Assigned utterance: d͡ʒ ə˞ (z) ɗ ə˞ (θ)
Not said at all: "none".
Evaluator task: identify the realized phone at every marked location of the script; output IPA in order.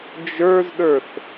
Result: z, θ

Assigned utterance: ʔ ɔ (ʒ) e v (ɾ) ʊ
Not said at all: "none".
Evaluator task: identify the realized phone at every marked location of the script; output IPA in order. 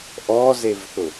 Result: z, θ

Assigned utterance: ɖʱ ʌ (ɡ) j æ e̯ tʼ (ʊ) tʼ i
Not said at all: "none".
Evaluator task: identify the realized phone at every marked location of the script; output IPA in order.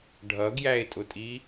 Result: ɡ, ʊ

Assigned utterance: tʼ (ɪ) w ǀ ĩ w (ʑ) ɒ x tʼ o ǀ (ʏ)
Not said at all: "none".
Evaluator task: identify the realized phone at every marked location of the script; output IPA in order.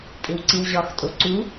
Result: ɪ, ʑ, u

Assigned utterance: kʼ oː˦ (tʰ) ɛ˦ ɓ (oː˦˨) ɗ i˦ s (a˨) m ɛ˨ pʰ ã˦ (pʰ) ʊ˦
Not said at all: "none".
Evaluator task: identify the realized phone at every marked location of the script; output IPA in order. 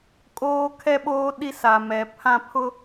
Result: kʰ, oː˦, a˨, pʰ

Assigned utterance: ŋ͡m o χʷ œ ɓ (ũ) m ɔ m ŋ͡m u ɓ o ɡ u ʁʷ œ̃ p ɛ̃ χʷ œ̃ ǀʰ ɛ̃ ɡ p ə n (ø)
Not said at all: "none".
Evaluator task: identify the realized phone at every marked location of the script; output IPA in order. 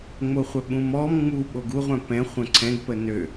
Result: ũ, ø

